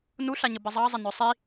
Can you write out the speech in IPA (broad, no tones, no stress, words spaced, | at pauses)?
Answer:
nuɬaɲə bəzˤɑzˤə nœsˤi